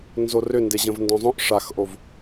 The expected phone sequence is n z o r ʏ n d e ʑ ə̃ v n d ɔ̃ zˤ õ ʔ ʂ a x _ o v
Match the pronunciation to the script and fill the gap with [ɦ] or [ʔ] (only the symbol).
ʔ